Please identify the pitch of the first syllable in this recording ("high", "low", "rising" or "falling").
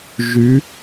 rising